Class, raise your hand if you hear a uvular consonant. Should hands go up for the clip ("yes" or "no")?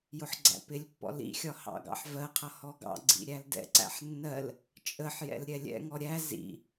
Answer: yes